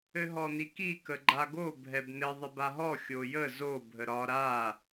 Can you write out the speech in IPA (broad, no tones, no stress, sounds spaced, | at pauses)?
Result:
ɘ ɦ ɔ n i k i k ə ɡ͡ǃ a ɡ o bʱ ɛ b n ɘ ðˤ ɘ b a ɦ ɔ xʲ o j ə z o bʱ ə ɾ ɒ ɾ a